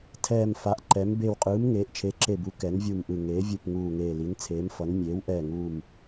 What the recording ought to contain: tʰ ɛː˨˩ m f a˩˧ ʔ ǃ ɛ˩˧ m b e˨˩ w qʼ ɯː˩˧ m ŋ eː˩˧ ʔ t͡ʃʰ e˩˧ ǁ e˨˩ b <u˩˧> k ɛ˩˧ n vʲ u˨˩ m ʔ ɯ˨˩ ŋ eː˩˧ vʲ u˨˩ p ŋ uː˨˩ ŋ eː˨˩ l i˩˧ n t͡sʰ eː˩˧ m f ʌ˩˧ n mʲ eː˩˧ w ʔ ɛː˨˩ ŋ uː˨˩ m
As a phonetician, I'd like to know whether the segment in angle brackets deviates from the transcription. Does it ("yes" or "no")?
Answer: no